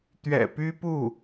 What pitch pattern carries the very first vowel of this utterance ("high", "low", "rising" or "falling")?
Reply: low